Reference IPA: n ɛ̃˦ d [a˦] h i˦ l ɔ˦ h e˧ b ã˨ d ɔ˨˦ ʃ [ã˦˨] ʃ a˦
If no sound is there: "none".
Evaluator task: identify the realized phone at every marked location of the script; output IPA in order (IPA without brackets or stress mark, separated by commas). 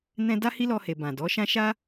a˦, ã˦